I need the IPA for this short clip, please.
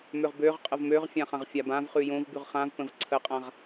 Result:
m ø ʁ b ø ʁ qʼ ə v m ø ʁ fʲ ã χ ã ʁ fʲ a b ã v χ ʉ j õ v b ʉ ʁ χ ã v p ə̃ v ǀʰ ə qʼ ã ʁ

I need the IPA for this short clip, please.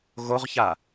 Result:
ɣ o ʁ ç a

